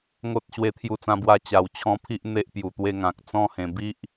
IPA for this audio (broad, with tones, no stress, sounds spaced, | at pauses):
ŋ o˦ t̚ ɕ w e˧ t̪ʰ j u˧ t͡s ã˧ b w a˧ t͡ɕ a˧ w t͡ɕʰ ɔ̃˦ pʰ i˦ ʔ n̪ e˦ ʔ p j u˨˩ t̪ w e˧ ŋ ã˨ k̚ t͡s ɔ̃˥˧ h ẽ˨˩ b i˦ ʔ